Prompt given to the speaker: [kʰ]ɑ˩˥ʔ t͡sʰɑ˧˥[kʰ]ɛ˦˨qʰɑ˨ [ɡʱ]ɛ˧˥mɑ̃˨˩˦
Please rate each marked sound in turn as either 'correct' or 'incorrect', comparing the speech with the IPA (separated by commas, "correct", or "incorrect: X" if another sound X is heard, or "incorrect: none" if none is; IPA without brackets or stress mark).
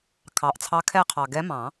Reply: correct, correct, incorrect: ɡ